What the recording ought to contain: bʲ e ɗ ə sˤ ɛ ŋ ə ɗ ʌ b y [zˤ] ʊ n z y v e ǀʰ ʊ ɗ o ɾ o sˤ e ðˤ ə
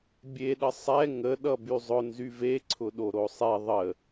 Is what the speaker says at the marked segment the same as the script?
yes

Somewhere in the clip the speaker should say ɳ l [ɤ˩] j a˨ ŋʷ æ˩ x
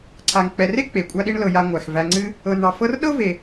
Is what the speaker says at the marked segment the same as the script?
no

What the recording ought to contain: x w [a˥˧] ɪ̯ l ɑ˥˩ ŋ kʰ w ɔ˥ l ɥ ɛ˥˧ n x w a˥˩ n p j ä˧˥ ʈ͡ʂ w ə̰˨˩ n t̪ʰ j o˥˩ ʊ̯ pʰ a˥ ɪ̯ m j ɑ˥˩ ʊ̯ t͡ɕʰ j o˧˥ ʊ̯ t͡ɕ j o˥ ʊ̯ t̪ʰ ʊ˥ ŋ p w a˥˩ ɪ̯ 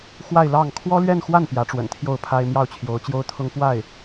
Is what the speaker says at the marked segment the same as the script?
yes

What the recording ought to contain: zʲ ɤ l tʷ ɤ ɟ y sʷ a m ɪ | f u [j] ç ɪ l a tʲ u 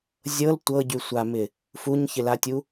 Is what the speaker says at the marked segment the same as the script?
no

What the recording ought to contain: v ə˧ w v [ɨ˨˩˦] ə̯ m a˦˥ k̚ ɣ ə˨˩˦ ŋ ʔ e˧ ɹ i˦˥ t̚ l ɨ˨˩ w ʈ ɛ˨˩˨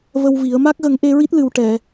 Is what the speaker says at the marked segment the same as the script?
no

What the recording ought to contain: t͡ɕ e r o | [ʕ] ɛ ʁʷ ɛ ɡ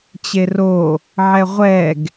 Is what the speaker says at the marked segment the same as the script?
yes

